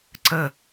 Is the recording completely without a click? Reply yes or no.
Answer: no